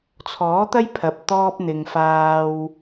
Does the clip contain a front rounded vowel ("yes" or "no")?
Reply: no